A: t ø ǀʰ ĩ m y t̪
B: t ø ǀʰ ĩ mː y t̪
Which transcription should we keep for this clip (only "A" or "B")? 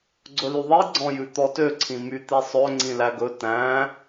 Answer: A